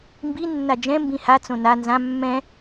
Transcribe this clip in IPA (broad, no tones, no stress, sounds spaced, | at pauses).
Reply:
m b i nː a d͡ʒ ɛ̃ m b ĩ h a t͡s õ n a n z ã mː ɛ̃